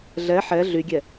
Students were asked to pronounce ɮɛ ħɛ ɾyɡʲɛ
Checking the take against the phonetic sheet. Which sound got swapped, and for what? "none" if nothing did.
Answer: ɾ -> ɮ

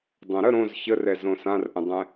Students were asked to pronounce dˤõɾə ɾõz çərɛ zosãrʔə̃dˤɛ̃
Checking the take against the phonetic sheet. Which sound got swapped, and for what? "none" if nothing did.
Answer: o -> õ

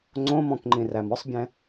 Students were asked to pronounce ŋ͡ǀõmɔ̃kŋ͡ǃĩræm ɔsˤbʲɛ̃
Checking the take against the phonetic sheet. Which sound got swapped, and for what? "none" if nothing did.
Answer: none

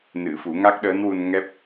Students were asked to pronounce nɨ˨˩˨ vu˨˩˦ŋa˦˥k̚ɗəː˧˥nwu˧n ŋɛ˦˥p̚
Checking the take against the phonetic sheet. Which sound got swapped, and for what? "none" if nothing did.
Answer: v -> f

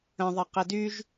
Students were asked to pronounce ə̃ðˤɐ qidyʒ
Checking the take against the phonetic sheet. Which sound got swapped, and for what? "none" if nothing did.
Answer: none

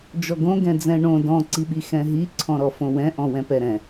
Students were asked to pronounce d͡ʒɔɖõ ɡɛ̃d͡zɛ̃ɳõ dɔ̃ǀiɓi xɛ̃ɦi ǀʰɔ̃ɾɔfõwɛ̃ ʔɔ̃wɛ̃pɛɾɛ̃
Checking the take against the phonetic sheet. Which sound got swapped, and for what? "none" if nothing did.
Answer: ɖ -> ɡ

